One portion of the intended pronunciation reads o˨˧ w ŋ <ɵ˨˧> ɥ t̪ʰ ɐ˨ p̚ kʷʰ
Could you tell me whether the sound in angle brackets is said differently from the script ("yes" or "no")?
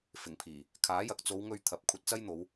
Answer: yes